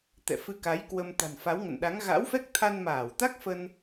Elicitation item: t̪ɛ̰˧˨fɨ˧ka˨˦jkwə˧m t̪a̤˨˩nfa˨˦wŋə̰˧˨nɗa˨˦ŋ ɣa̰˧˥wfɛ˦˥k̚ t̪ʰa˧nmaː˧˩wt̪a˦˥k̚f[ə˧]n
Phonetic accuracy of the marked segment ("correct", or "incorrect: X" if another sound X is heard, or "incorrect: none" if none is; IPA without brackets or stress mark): correct